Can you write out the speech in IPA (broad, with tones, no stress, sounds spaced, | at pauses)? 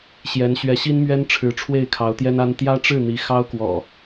ɕ j ɛ˨˦ n ɕ ɥ ɛ˨˦ ɕ i˦ n m ɥ ɛ˦ n ʈ͡ʂʰ ɻ̩˨˦ ʈ͡ʂʰ w e˥˨ ɪ̯ kʰ ɑ˨˦ ʊ̯ t̪ j ɛ˦ n a˦ n t̪ j ä˦ ʈ͡ʂ ɻ̩˥˨ n̪ i˨˦ x ɑ˦ ʊ̯ k w ɔ̰˨˩